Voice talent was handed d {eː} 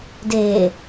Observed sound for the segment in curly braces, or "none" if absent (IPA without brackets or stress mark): eː